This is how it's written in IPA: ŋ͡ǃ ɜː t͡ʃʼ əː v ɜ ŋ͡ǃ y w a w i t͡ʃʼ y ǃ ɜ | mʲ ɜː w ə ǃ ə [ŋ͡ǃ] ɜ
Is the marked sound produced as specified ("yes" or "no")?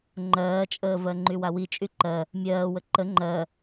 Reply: yes